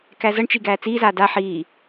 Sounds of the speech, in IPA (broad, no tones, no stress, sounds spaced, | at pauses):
k æ z ʌ ɳ t͡ʃ i ɡ æː t͡s iː z aː d a ħ iː